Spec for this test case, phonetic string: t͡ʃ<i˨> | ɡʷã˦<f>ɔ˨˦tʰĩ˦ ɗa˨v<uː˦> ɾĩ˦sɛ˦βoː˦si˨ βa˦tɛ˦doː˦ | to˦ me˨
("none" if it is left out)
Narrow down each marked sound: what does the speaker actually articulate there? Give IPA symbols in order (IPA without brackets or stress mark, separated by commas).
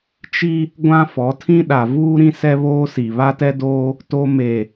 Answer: i˦, f, uː˦